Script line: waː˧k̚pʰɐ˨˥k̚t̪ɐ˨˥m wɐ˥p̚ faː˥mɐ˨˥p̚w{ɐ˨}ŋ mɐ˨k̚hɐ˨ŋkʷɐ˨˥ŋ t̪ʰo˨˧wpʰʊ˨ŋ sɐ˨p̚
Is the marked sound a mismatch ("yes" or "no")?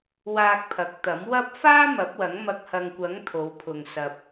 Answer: yes